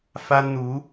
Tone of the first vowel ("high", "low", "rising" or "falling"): high